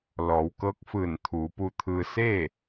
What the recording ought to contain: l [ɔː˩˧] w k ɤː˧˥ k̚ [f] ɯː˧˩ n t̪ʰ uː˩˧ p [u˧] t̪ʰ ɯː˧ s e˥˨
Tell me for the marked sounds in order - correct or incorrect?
correct, correct, correct

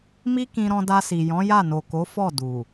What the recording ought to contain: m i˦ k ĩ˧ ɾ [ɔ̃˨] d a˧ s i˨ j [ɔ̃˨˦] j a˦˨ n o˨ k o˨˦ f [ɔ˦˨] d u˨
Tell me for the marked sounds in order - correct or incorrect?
incorrect: ɔ̃˧, correct, correct

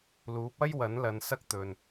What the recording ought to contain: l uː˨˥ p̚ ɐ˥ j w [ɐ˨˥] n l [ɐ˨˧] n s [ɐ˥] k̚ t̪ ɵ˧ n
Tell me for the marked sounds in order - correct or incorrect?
correct, correct, correct

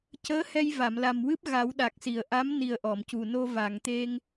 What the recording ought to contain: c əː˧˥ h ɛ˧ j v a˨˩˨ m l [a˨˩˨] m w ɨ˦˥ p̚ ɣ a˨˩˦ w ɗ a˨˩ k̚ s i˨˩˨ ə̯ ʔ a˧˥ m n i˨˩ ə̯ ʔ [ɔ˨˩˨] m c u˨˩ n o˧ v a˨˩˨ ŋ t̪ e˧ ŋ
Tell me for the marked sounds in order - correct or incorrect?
incorrect: a˨˩, correct

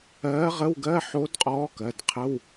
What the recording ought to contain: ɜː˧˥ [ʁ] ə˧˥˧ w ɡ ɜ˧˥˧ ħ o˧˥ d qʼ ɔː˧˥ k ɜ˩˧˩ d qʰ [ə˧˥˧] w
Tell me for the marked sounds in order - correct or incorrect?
correct, correct

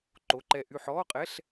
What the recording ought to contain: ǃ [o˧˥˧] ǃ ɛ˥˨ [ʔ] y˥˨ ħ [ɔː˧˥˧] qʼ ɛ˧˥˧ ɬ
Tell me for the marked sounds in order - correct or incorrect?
correct, correct, correct

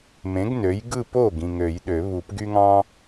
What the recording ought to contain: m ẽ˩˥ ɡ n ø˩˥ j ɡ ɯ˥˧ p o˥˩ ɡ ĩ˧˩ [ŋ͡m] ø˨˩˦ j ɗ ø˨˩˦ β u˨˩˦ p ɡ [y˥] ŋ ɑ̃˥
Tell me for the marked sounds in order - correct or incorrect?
incorrect: ŋ, correct

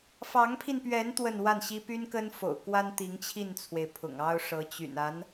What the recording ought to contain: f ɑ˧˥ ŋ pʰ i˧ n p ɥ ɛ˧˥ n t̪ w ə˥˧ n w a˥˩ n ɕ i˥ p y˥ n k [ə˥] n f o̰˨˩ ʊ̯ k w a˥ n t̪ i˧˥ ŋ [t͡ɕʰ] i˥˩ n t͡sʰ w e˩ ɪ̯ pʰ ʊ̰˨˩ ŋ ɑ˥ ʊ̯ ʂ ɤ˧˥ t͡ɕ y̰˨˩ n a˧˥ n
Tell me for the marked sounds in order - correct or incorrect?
correct, correct

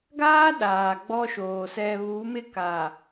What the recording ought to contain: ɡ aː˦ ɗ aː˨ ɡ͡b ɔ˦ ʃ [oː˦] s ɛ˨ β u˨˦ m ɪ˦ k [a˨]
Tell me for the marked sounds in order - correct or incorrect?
incorrect: oː˨, correct

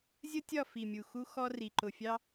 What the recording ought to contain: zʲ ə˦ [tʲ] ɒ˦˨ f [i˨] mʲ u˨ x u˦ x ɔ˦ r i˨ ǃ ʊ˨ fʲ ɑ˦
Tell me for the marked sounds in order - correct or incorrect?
correct, correct

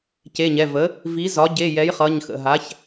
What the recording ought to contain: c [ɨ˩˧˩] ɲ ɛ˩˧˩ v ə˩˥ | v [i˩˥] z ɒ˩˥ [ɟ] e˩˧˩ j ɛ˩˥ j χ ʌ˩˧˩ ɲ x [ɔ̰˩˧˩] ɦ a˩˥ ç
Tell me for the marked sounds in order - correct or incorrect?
incorrect: e˩˧˩, correct, correct, incorrect: ə̰˩˧˩

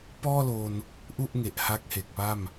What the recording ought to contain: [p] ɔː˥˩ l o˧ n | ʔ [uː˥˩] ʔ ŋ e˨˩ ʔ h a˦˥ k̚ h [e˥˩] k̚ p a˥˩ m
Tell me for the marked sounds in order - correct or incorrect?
correct, incorrect: u˥˩, incorrect: e˨˩

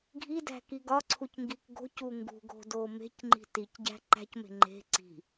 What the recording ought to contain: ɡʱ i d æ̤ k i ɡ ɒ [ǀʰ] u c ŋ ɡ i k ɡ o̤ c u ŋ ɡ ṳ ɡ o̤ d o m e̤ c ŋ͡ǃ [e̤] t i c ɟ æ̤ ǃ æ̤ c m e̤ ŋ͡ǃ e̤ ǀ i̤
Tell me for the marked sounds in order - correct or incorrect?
correct, incorrect: i̤

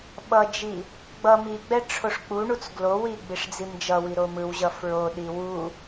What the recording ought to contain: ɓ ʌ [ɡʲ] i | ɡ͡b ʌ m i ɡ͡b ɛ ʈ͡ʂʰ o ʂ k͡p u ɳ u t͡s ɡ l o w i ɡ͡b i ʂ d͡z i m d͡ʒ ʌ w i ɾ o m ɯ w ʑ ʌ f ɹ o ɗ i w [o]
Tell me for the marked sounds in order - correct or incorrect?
incorrect: d͡ʒ, incorrect: u

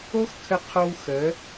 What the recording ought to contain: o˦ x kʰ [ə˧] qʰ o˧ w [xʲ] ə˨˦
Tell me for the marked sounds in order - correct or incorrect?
correct, incorrect: x

